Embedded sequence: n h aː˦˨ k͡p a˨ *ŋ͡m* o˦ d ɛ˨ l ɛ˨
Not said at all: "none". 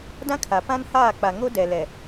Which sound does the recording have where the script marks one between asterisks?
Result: ŋ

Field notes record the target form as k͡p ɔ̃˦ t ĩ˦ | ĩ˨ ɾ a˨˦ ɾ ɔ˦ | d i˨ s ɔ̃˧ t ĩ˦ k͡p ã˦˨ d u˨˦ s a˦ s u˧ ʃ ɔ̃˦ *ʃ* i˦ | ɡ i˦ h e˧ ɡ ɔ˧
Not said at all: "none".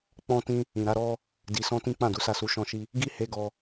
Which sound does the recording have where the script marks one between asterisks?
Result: ʃ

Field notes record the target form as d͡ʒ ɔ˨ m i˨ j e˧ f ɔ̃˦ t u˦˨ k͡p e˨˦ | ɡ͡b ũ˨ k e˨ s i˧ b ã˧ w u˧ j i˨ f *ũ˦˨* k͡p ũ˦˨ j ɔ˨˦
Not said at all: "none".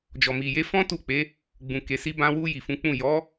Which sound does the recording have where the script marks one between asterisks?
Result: ũ˨˦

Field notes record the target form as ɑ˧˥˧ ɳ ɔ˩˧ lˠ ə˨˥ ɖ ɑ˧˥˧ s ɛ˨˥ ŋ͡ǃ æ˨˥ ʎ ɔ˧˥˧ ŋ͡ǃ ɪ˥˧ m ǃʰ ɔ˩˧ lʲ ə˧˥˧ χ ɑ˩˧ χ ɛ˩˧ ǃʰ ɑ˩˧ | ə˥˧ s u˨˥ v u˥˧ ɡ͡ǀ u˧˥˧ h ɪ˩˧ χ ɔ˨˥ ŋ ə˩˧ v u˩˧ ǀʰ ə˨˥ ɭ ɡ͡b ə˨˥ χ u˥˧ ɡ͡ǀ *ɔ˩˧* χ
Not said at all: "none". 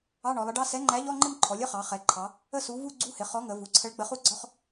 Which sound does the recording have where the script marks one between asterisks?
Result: ɔ˧˥˧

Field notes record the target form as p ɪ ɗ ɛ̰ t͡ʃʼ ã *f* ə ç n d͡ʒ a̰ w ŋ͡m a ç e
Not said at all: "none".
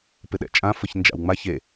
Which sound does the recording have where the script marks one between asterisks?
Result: f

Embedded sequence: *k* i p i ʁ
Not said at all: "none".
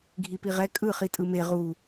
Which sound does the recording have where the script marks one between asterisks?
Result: ɡʱ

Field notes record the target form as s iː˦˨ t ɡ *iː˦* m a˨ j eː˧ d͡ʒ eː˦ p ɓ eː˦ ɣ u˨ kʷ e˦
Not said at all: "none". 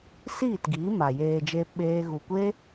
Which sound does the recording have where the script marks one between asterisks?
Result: iː˨˦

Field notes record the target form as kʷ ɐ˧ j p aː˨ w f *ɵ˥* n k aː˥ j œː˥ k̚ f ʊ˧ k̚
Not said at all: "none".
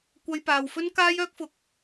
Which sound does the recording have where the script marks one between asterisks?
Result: ɵ˥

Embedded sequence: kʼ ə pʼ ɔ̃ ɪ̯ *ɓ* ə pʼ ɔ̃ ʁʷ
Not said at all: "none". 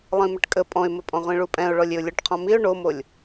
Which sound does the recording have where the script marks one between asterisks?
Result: m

